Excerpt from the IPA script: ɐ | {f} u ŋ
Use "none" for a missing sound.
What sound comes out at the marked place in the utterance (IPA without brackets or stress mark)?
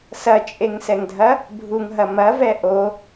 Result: bʱ